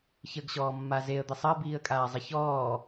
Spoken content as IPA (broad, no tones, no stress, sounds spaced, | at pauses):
ç ə ɡ ɕ ɔː mː a z e ə̯ d̪ i sˤ ə ɪ̯ b iː ə̯ kʼ aː zˤ e ç ɔː